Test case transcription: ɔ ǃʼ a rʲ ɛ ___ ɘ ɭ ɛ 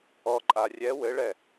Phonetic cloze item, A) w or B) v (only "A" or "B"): A